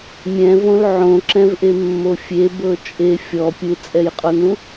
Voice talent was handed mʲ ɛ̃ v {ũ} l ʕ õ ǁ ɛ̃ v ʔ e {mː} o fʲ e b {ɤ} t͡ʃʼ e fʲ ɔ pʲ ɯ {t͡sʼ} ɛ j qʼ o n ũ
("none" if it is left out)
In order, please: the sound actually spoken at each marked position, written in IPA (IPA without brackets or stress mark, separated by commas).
õ, mː, ɤ, t͡sʼ